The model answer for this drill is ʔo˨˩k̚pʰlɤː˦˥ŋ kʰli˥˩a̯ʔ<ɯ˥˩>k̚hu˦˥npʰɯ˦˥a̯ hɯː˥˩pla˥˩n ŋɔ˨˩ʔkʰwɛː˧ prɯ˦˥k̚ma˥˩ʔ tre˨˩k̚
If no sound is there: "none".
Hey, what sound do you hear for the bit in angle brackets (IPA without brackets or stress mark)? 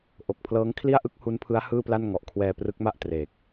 ɯ˥˩